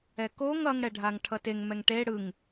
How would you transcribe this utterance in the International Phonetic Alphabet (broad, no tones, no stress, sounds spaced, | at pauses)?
ɛ k o ŋ ʌ ŋ ɽ ɛ ɖʱ a ŋ ʈʰ ʌ t e ŋ m ɛ ŋ ʈ e ɽ ɯ ŋ